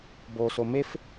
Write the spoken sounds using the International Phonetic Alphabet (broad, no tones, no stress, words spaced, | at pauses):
boso mef